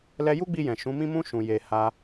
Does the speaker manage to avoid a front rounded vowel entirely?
yes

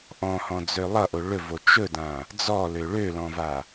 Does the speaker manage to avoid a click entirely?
yes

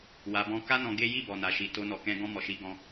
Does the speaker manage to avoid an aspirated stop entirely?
yes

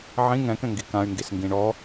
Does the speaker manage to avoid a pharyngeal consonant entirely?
no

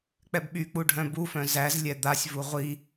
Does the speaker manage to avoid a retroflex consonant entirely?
no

